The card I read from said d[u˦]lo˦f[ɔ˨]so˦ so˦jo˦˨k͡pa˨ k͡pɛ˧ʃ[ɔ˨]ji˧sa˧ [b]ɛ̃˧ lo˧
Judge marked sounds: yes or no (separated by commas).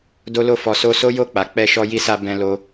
no, no, no, yes